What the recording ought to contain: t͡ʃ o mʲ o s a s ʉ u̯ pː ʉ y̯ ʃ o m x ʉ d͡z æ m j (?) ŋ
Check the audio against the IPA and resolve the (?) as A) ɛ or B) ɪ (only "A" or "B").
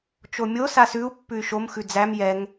A